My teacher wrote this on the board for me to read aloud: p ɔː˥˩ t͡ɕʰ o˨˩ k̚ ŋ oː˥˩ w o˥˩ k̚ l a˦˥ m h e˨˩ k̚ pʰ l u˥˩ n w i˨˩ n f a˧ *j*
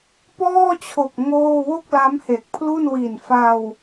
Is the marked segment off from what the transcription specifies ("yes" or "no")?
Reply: yes